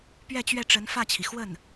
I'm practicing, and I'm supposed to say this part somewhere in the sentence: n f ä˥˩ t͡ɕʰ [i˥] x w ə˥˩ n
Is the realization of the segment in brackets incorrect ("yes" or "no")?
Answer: yes